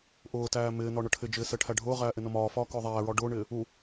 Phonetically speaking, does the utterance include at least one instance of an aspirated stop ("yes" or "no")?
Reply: yes